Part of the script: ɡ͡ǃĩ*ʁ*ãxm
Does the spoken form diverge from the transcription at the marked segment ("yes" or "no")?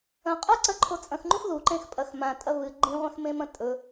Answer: yes